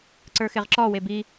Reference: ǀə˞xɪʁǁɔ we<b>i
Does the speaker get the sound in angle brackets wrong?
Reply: no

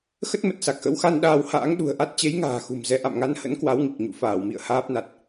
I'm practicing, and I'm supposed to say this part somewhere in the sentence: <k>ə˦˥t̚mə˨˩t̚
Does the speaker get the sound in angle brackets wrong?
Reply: yes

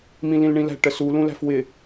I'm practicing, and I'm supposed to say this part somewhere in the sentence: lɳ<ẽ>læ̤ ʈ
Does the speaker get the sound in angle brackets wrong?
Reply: yes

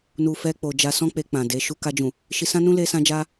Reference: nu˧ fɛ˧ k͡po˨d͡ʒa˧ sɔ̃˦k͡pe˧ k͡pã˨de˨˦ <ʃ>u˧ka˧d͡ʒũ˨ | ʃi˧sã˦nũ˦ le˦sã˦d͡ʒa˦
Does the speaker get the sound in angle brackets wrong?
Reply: no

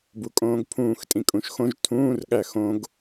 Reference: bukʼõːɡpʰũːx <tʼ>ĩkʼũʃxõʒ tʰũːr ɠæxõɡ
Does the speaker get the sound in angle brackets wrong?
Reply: no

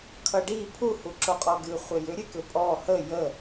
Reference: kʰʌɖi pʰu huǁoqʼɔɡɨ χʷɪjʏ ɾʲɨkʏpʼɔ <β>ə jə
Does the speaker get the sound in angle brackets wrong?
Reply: yes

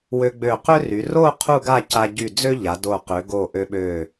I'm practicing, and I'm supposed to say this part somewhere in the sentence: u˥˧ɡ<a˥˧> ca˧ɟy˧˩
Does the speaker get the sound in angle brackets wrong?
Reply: no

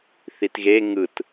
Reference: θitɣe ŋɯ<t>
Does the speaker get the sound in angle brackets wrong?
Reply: no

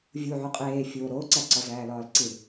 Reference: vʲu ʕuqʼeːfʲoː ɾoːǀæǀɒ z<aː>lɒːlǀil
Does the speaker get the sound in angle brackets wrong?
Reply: yes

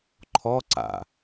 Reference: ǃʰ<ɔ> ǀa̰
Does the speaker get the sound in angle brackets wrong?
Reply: no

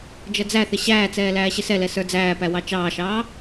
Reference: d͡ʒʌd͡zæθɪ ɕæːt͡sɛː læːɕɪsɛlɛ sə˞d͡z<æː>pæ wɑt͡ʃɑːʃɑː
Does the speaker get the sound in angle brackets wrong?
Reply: no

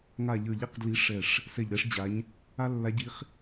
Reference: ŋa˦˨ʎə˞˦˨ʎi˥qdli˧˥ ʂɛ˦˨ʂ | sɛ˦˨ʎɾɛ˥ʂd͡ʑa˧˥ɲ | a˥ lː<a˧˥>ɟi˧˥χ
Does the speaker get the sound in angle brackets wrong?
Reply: no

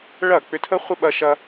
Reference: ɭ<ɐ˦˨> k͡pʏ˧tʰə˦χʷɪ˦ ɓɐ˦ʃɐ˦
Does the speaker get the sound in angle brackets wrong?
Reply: no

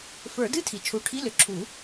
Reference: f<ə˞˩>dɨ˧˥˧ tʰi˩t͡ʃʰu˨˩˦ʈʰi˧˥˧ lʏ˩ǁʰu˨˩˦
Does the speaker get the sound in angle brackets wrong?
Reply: yes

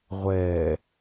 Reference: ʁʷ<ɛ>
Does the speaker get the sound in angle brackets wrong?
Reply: no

